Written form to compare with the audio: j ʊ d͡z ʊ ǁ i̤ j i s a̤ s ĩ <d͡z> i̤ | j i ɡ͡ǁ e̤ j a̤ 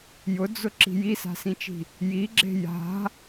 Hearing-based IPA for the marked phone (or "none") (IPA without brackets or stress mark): t͡ʃ